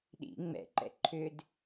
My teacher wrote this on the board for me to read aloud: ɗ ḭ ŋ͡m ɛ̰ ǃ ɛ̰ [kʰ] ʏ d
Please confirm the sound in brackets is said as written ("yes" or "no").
no